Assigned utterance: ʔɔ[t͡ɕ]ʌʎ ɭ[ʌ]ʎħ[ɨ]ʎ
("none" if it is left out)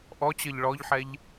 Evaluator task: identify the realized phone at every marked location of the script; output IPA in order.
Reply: t͡ɕ, ɔ, ɛ

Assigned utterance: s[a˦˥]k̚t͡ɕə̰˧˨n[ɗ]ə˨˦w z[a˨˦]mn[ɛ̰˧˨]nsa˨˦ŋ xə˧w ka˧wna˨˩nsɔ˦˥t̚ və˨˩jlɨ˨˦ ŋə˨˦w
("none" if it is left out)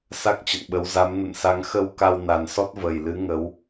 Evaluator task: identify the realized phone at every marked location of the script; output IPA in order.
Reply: a˦˥, ɓ, a˨˦, ə̰˧˨

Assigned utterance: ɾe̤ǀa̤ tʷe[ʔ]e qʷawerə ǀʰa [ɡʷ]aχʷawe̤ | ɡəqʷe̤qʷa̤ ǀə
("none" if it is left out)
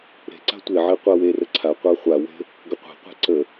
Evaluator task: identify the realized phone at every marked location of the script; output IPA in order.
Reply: ʕ, qʷ

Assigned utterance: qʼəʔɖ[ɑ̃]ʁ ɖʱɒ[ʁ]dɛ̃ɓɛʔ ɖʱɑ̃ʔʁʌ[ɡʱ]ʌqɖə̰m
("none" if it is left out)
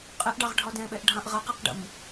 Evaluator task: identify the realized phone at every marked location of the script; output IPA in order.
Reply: ɑ, none, q

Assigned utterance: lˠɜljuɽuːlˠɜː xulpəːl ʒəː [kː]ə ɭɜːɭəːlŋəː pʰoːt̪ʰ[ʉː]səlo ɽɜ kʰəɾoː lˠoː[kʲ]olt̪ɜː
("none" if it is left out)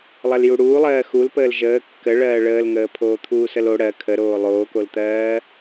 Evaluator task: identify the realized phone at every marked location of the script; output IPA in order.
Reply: kː, uː, k

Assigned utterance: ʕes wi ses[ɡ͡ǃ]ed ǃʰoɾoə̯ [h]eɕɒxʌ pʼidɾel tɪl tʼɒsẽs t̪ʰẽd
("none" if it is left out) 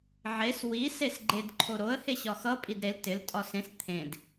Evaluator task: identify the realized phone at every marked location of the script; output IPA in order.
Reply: ɡ͡ǃ, h

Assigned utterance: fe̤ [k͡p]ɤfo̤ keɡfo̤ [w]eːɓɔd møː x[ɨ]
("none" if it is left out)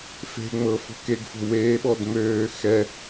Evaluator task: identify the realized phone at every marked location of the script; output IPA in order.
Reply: ŋ͡m, w, ɛ

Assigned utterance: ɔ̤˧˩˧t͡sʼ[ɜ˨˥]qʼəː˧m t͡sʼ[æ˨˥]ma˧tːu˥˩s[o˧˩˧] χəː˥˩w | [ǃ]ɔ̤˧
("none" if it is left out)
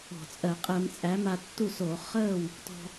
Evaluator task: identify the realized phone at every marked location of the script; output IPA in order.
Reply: ɜ˧˩˧, æ˨˥, o˧˩˧, t

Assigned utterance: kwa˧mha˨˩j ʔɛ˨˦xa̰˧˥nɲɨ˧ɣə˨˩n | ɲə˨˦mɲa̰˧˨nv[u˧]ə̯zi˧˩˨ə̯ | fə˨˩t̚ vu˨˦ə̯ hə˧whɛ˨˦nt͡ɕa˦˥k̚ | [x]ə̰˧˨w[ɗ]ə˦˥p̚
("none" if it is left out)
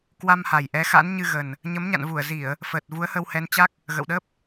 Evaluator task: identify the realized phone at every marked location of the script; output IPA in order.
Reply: u˧˩, ɣ, ɗ

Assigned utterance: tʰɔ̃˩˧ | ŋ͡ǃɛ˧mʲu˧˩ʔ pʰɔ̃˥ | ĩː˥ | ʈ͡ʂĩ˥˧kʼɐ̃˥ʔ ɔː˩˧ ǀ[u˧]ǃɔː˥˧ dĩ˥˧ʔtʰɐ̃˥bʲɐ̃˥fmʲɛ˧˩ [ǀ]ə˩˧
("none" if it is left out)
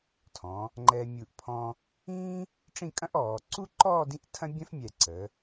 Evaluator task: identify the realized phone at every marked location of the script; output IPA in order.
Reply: u˥, ǀ

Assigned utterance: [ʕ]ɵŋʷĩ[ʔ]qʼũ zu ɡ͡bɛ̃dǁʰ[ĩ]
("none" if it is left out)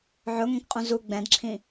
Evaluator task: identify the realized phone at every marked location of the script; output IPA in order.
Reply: ʕ, k, ĩ

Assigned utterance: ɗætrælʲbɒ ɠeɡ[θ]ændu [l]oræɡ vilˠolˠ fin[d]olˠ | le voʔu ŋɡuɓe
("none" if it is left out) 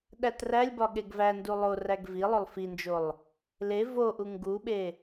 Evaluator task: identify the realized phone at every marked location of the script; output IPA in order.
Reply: v, lˠ, d͡ʒ

